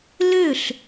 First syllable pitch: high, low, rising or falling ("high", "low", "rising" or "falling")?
falling